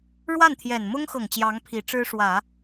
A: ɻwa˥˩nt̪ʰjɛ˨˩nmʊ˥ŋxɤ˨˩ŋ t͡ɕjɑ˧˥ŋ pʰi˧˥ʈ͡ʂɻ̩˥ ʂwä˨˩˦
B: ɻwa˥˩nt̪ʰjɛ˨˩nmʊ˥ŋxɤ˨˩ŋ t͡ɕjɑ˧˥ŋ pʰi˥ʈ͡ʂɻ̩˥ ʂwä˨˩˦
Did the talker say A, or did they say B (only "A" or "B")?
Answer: A